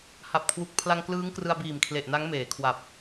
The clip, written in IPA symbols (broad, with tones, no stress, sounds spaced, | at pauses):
h a˨˩ p̚ kʰ w u˨˩ k̚ pʰ l a˧ ŋ k l ɯː˦˥ ŋ k r ɯ˧ a̯ b iː˨˩ m kʰ l e˨˩ ʔ n a˦˥ ŋ m eː˩˦ kʰ w a˨˩ p̚